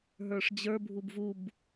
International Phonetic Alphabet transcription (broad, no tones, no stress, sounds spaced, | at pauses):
ɦ ə˞ ʂ d͡ʑ ə˞ bʱ u b v u b